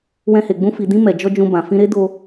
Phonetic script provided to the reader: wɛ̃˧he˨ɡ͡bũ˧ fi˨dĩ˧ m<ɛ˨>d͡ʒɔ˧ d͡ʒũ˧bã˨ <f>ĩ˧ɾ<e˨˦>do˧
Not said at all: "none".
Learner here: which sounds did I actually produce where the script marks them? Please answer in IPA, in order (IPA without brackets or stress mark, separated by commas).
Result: ɛ˨, f, e˦